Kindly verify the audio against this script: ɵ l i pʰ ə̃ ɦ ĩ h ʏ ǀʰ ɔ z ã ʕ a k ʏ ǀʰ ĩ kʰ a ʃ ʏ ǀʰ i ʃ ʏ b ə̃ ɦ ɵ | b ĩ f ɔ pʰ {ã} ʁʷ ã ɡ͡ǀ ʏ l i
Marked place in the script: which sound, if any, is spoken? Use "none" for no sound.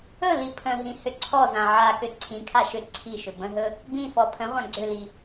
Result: ə̃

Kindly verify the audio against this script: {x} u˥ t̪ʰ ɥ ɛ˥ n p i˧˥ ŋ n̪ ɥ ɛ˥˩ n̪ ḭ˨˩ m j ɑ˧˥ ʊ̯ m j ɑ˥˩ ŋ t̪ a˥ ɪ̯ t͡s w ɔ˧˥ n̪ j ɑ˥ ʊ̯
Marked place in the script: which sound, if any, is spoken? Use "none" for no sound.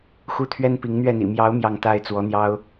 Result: x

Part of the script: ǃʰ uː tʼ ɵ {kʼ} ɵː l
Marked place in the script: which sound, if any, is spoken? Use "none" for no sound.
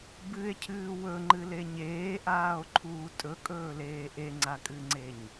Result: kʼ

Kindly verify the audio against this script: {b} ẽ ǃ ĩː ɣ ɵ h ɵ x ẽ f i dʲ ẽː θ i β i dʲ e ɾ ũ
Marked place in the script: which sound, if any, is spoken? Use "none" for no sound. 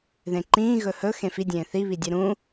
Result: ð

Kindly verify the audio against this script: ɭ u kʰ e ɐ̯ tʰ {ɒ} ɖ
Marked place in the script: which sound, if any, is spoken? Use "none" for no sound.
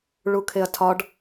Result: ɒ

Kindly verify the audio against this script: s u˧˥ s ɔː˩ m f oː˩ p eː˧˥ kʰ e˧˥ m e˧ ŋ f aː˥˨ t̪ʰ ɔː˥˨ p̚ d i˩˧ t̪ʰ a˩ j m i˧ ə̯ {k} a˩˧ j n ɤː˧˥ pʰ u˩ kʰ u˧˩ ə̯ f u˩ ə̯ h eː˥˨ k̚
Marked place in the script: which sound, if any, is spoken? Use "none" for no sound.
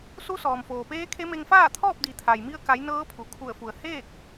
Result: k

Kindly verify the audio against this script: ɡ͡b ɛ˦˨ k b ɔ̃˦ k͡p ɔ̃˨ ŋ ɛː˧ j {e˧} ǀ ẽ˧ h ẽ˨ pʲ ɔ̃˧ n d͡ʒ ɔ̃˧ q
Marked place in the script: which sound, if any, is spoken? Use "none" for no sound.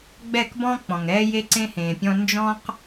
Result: e˧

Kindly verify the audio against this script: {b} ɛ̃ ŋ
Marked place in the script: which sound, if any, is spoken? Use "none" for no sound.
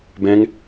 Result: b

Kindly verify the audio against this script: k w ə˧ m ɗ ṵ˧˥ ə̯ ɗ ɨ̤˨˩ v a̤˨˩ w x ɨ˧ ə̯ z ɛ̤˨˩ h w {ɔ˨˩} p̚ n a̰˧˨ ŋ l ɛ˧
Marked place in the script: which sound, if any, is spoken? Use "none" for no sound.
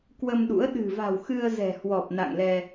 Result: ɔ˨˩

